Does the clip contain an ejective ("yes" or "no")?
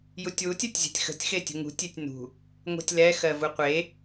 no